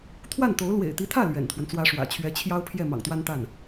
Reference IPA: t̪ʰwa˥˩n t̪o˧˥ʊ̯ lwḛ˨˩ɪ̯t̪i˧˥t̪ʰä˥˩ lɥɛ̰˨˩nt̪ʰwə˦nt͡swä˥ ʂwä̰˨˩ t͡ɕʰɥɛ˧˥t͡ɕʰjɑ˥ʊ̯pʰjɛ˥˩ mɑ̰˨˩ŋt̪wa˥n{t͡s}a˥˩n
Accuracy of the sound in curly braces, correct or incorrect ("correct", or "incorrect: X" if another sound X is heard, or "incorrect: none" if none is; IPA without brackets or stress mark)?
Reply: incorrect: t̪